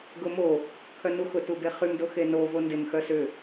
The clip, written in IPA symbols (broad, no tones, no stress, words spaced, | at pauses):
ɡʊmo | kʰœnuxʊ tubeχym doxeno vondɪm xœsʏ